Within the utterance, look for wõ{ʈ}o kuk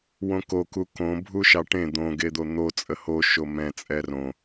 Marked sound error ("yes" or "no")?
yes